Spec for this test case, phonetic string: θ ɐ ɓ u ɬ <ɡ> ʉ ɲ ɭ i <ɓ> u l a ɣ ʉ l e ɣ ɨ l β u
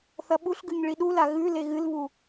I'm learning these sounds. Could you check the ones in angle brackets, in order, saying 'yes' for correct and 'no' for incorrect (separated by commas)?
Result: yes, no